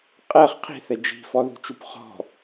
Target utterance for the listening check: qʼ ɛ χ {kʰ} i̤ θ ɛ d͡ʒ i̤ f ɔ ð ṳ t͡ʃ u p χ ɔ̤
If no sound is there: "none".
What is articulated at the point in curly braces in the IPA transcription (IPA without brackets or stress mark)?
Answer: qʰ